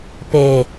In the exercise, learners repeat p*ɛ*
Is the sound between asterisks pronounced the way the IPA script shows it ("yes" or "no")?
no